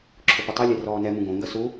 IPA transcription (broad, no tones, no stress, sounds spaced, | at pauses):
ǁʰ ʊ p ʊ tˤ ɛ lʲ ɛ r ɔː n ɛ m ũ ɡ õ ŋ ɡ ɐ s u